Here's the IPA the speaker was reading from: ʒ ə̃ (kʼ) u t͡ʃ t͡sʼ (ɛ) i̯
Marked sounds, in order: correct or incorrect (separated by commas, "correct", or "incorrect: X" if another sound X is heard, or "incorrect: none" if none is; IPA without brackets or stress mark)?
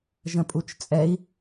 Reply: incorrect: pʼ, correct